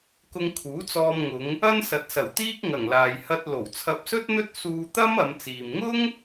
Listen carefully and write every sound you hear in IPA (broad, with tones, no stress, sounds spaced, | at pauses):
k ʊ˧ ŋ kʰ uː˨˥ t͡s ɔː˧ m ŋ ʊ˨˧ ŋ | ɐ˥ n s ɐ˨˥ t̚ s ɐ˨˩ w t̪ iː˥ k̚ ŋ ɐ˨˩ ŋ l aː˨ j h ɐ˧ t̚ l o˨˩ w t͡sʰ ɐ˧ p̚ s ɵ˥ t̚ n̪ ɵ˥ t̚ s uː˧ t̪ ɐ˥ m ɐ˨˧ m t͡s iː˨ m ŋ ʊ˥ ŋ